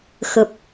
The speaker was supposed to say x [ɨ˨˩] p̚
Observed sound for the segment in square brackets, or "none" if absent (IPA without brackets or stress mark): ə˨˩